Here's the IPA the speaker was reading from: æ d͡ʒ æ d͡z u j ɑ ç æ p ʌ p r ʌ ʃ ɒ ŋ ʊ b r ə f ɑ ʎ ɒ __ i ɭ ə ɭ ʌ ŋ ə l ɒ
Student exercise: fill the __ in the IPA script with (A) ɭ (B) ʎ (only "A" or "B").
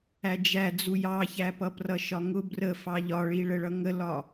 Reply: A